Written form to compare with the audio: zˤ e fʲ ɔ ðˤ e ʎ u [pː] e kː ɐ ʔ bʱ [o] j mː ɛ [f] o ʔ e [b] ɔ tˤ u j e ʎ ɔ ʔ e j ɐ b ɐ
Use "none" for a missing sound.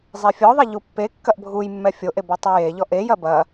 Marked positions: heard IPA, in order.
pː, u, fʲ, b

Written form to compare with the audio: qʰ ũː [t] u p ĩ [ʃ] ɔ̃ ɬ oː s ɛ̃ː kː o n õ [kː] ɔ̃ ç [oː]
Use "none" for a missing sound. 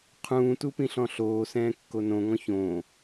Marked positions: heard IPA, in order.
t, ɬ, ŋ, õː

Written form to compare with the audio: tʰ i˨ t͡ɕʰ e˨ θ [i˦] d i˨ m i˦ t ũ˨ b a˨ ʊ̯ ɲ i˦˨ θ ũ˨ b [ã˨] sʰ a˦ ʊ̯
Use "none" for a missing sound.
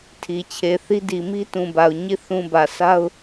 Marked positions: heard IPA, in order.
i˦, ä˨

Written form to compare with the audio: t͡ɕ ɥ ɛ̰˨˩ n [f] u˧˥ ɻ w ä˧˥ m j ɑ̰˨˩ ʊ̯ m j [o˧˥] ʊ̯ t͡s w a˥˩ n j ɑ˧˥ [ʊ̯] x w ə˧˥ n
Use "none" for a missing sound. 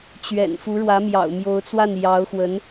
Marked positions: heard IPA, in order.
f, o˧˥, ʊ̯

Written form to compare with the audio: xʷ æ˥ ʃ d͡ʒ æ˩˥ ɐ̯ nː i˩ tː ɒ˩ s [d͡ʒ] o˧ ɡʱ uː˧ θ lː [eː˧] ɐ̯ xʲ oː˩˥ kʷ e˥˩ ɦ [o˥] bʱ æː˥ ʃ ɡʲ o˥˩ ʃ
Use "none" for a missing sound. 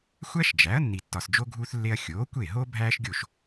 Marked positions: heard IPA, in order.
d͡ʒ, e˧, o˥

